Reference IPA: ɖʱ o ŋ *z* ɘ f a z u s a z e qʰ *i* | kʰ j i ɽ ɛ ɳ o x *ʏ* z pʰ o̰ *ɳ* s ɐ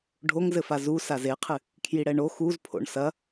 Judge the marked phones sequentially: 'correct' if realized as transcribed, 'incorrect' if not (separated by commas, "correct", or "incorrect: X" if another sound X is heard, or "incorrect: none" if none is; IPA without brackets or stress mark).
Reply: correct, incorrect: ɨ, incorrect: u, correct